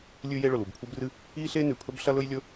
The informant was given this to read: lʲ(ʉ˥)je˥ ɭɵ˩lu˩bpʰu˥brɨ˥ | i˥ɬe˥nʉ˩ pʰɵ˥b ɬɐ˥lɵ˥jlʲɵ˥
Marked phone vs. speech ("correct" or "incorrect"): correct